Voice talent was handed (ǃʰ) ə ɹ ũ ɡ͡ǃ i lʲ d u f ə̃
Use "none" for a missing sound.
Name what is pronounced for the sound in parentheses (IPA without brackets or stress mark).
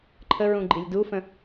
ǃʰ